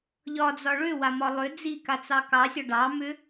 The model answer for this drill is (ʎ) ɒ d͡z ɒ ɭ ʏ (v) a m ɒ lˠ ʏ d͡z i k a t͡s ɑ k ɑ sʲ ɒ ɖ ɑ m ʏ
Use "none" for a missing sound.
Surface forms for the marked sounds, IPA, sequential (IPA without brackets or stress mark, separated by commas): ʎ, w